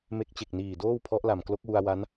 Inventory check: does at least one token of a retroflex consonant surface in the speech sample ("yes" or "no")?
no